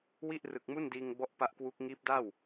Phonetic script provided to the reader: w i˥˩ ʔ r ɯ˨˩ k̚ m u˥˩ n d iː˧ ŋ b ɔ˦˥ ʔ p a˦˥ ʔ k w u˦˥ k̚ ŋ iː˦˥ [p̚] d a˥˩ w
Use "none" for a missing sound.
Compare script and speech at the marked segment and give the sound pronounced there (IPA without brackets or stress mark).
p̚